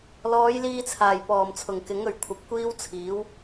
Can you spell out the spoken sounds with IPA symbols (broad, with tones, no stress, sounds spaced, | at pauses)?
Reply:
l ɔː˨˧ j l iː˧ t͡sʰ aː˨˩ j p ɔː˨˩ m t͡sʰ ʊ˨˩ ŋ k ɪ˨˥ ŋ ɵ˨˩ ɥ kʷʰ ɐ˨˥ p̚ kʷ iː˥ w t͡sʰ iː˨˥ w